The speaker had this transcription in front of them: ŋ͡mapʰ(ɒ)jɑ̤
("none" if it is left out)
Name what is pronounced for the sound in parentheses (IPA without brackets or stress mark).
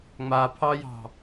ɑ